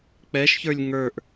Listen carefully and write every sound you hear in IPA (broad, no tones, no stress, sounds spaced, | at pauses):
k͡p ɛ ʃ ç ə˞ lʲ ŋ ə˞ ʔ